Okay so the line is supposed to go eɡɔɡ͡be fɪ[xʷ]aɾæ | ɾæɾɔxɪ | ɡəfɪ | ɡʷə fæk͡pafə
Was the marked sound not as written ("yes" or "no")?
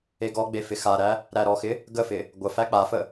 yes